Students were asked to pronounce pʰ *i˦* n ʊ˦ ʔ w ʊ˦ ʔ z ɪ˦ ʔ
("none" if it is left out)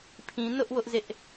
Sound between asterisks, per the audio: ĩ˦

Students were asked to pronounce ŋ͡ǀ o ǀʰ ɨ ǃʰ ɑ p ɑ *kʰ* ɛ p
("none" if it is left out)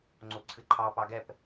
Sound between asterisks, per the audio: ɡ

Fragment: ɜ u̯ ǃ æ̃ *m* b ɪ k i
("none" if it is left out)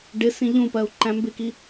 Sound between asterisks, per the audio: m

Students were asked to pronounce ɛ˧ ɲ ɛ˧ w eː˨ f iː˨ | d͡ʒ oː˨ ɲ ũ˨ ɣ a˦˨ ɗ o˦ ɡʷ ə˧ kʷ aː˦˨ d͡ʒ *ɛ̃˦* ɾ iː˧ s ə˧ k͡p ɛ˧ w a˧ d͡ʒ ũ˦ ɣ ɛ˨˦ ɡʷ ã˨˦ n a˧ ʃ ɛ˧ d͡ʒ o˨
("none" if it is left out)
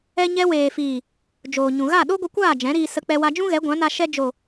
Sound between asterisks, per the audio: ɛ̃˨˦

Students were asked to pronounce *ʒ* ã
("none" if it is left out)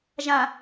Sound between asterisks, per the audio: ʒ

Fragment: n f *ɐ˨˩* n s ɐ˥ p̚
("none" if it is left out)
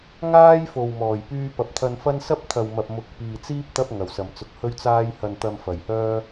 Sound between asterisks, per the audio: ɐ˥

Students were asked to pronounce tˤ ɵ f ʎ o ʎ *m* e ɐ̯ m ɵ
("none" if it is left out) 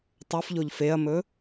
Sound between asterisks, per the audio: f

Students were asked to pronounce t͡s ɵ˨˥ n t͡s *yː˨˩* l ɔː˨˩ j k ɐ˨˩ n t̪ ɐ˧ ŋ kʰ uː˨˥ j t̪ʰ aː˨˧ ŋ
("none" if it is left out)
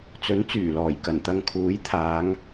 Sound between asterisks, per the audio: yː˨˩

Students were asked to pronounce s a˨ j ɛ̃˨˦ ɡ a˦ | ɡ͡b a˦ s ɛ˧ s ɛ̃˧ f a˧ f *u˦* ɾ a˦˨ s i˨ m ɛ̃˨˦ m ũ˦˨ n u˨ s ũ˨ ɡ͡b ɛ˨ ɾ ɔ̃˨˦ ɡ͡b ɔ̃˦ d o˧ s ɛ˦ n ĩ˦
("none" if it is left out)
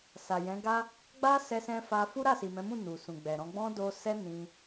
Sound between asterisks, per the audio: u˦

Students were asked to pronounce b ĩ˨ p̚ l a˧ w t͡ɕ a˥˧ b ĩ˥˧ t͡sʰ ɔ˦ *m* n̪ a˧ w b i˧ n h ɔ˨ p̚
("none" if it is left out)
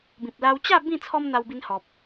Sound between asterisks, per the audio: m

